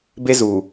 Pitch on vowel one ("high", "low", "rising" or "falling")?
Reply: high